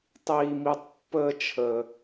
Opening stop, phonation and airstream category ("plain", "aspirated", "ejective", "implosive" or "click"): plain